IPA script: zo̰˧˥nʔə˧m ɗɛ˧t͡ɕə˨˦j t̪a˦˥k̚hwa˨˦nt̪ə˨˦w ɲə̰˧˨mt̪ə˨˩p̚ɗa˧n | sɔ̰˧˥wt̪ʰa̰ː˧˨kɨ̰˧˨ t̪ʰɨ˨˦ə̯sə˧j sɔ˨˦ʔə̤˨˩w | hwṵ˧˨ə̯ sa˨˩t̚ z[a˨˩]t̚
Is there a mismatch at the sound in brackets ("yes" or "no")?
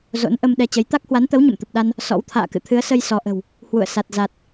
no